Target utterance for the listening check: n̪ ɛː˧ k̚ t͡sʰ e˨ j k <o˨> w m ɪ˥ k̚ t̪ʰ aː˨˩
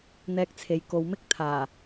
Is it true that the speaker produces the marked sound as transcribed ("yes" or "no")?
yes